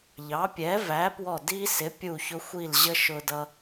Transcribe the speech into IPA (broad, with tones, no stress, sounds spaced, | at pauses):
ʎ ɑ˨˥ pʲ ɛ˨˥ v æ˨˥ p w ɔ˦˨ d i˦ s ɪ˨˥ pʲ u˦˨ ç ʊ˦ xʷ i˦˨ l ʑ ə˦ ʃ ʊ˦ d ʌ˦